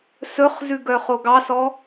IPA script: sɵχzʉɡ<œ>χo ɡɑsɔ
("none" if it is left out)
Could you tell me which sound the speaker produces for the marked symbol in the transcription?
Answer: œ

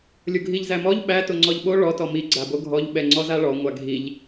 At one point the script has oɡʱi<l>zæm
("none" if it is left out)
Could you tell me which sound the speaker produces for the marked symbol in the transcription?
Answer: ʎ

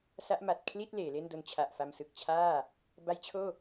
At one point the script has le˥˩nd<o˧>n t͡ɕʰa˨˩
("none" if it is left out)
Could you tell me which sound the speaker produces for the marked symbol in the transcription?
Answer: o˦˥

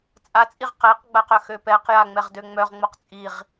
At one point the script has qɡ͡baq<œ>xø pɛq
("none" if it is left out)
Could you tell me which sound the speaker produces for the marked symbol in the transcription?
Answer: œ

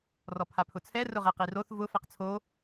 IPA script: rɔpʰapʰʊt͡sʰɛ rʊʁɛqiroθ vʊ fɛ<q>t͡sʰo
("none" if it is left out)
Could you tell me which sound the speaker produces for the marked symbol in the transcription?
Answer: q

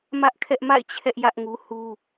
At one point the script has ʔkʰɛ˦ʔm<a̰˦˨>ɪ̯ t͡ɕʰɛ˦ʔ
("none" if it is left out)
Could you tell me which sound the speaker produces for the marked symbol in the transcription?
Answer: a̰˦˨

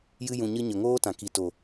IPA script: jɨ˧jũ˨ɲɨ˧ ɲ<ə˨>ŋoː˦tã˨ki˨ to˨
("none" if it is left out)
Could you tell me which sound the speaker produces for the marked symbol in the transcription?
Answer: ə˨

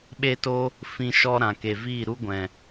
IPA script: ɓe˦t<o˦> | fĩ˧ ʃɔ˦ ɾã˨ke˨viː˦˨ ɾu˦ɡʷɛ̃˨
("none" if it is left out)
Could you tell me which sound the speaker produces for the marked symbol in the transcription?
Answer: o˦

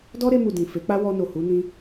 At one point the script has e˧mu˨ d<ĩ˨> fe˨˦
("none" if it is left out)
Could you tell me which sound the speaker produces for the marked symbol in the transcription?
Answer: ĩ˨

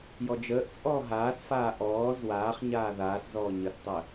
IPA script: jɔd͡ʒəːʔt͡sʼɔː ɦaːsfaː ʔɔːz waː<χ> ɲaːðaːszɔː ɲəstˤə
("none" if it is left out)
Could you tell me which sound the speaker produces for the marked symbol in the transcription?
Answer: χ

